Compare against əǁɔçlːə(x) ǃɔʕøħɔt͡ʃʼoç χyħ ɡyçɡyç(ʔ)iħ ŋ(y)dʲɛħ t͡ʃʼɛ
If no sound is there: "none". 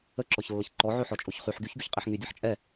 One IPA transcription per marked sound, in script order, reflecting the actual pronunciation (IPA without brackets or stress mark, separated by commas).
ç, qʼ, y